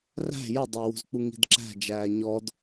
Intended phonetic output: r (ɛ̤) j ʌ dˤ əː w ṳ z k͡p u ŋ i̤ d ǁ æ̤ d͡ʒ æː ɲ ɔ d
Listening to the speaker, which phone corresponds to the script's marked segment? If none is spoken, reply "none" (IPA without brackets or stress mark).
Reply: æ̤